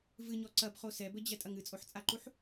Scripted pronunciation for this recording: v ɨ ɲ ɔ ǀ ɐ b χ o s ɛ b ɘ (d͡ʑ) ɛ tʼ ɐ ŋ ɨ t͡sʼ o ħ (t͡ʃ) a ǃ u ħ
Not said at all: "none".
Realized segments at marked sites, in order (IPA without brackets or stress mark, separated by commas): d͡ʑ, t͡sʼ